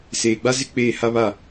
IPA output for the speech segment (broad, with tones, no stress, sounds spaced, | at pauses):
s eː˨ ɡ͡b a˦ z ɪ˦ k͡p eː˦˨ h a˦ β a˦˨